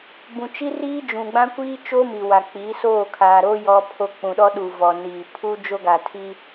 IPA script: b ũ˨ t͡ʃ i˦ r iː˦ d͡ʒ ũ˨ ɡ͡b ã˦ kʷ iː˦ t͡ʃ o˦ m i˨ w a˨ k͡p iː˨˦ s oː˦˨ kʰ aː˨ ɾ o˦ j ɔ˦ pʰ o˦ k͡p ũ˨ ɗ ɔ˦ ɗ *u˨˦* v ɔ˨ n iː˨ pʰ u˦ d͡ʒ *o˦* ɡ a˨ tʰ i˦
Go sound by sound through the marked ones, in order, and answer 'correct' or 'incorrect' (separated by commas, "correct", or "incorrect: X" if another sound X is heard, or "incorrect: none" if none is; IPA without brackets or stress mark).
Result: incorrect: u˨, correct